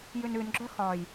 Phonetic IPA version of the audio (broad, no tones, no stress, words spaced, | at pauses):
jʉnʉnɡ͡ǁœ xɒj